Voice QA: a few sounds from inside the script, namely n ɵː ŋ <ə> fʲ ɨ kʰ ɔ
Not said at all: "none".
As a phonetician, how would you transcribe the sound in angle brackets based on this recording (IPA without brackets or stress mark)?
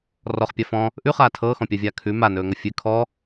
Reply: ə